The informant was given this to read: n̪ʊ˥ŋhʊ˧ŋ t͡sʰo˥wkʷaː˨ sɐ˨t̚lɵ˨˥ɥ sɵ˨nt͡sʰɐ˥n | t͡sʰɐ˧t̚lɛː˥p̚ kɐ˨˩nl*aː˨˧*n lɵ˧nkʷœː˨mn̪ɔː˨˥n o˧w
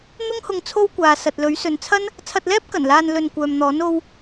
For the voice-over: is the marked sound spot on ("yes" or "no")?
no